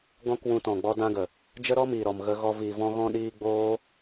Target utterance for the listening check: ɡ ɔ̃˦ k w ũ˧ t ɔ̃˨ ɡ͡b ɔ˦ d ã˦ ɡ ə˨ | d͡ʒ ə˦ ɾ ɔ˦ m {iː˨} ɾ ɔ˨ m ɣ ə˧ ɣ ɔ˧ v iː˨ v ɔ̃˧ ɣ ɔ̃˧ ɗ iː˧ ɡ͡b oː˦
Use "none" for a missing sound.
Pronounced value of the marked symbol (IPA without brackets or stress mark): iː˨